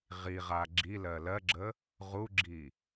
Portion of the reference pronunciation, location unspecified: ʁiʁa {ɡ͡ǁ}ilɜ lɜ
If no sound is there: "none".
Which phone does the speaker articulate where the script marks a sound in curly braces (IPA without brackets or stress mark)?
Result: ɡ͡ǁ